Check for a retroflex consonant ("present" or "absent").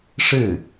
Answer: present